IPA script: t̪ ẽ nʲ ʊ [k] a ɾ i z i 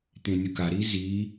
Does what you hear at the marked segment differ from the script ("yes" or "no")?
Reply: no